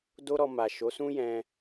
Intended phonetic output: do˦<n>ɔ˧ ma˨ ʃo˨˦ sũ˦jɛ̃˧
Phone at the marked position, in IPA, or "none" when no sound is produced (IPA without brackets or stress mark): ɾ